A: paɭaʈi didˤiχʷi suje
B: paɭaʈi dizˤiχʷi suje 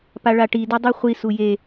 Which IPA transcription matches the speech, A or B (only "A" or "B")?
A